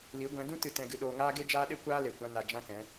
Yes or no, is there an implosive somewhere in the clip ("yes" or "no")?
yes